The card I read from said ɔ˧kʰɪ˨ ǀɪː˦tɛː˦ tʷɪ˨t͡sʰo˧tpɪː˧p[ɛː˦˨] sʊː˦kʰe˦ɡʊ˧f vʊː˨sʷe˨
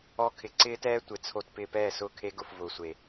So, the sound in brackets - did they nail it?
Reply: yes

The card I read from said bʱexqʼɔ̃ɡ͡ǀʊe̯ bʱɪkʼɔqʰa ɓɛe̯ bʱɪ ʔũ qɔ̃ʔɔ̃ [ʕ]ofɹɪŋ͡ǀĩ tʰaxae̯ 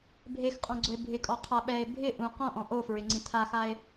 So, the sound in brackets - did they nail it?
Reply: no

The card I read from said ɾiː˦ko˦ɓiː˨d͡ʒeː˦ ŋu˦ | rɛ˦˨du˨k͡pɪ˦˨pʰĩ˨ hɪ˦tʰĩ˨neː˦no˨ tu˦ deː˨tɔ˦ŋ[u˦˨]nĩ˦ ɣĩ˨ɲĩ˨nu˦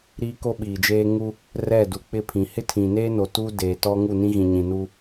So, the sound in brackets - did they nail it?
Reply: yes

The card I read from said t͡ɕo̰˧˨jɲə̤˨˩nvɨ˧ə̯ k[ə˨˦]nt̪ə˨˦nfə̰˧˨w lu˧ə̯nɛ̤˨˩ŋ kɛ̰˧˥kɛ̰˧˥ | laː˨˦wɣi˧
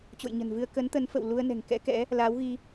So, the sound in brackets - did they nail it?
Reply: yes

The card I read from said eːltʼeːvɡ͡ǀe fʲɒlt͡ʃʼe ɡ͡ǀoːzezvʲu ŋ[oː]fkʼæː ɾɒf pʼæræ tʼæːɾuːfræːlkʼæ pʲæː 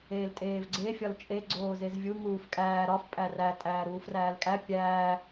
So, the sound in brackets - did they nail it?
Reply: no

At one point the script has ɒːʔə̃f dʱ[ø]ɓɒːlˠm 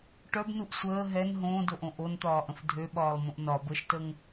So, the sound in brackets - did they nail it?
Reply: yes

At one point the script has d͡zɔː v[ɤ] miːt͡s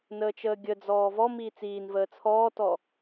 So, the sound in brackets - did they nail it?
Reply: no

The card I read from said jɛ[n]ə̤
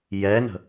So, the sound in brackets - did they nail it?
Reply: yes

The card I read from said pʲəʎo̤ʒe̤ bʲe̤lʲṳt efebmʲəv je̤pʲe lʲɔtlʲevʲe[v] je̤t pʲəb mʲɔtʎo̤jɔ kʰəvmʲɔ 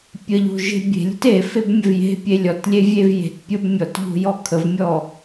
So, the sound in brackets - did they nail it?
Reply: yes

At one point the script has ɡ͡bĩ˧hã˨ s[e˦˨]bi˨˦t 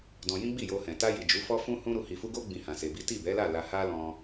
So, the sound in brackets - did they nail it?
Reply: no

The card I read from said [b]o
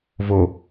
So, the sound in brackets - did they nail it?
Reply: no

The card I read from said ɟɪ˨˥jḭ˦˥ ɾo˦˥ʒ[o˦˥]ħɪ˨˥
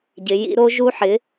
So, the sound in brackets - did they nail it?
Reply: no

